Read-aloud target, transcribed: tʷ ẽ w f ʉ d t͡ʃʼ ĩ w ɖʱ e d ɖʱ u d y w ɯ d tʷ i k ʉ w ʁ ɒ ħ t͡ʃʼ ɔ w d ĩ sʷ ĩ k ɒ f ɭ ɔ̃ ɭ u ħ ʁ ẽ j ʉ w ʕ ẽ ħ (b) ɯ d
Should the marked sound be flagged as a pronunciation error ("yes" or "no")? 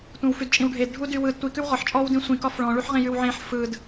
yes